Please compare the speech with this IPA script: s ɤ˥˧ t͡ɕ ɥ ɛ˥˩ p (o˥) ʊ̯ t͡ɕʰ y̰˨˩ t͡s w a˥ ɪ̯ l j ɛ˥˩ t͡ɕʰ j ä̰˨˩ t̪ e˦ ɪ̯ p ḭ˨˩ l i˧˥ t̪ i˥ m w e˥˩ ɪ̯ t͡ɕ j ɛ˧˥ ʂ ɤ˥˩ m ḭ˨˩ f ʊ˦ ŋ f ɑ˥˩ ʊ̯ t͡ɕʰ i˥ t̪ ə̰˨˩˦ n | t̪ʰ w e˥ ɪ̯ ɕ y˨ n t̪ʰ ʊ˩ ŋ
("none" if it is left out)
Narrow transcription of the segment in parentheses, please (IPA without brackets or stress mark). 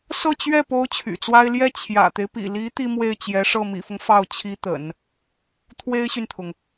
o˥